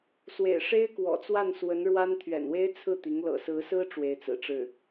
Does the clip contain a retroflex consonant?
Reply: yes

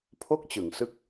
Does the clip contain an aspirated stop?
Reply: yes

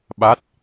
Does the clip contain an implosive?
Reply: yes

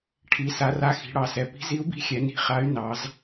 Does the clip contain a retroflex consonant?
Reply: yes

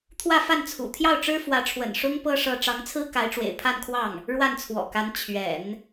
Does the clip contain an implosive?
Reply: no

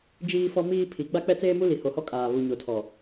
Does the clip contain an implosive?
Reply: no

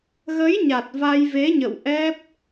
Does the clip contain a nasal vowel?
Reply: no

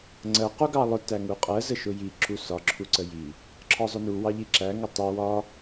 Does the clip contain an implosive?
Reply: no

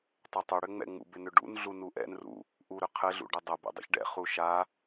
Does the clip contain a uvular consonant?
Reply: yes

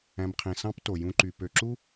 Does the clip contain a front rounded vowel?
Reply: yes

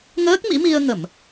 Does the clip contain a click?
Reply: no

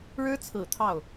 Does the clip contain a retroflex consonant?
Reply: yes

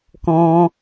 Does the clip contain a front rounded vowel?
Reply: no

